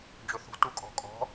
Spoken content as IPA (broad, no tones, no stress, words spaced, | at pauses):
d͡ʒɵθṳ tukʼɔ̤kʼɔ̤